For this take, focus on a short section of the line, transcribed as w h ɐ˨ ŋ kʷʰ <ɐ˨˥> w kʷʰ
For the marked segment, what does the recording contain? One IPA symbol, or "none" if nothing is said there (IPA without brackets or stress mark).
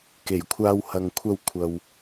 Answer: ɐ˧